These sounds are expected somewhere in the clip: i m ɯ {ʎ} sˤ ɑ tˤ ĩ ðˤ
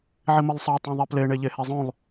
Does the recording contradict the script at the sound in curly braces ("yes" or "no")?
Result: yes